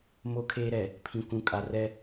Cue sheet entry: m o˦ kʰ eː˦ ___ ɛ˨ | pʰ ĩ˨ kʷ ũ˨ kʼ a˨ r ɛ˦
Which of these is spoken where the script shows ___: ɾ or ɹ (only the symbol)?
ɾ